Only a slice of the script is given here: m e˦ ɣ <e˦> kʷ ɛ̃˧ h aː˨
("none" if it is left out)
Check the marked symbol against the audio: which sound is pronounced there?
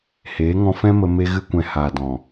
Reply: ɨ˦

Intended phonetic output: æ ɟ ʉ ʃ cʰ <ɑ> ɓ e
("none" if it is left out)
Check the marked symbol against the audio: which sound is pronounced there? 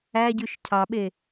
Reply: ɑ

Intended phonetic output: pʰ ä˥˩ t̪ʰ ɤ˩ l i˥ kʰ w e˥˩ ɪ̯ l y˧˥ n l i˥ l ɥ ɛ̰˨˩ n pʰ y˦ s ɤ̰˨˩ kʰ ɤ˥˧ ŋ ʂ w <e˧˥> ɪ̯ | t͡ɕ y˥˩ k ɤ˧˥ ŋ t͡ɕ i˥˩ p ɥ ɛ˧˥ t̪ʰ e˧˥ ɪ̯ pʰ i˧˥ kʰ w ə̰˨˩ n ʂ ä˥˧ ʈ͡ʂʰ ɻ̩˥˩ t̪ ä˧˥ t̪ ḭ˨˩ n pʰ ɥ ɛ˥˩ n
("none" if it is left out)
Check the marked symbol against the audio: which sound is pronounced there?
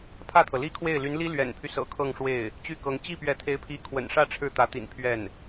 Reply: e˥˩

